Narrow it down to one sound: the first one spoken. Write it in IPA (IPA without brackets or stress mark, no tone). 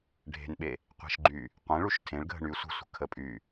ɖʱ